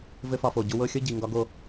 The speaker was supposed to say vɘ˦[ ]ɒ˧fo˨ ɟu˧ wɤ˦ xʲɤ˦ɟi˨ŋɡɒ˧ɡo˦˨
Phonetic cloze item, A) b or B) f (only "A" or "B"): B